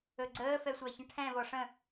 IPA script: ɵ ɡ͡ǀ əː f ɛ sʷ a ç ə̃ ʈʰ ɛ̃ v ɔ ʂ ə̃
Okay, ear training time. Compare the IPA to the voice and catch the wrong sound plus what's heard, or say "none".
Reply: none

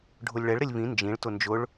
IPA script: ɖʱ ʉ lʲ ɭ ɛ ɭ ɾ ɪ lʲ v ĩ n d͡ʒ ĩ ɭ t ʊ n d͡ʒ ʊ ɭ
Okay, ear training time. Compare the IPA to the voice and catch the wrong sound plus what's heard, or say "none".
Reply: ʉ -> ʊ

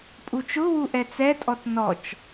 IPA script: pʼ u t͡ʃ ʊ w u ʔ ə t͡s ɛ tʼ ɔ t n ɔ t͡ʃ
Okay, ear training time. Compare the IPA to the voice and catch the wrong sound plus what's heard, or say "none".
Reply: ə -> ɛ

